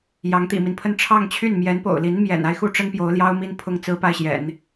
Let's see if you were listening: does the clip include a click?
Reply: no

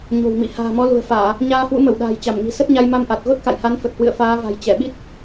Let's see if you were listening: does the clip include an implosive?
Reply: yes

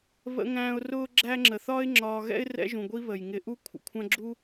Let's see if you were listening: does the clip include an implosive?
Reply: no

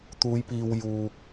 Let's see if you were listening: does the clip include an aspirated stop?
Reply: no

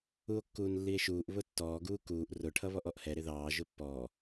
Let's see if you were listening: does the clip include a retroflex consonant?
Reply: yes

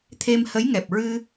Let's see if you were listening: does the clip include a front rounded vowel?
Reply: no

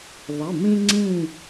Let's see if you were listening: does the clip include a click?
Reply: yes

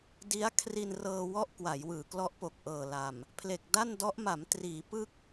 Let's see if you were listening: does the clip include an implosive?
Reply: no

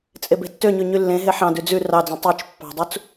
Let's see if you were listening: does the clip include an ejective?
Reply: yes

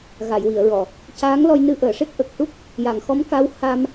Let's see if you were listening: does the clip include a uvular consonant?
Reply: no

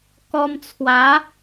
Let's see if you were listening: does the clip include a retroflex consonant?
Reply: no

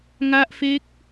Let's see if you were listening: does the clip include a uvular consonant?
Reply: no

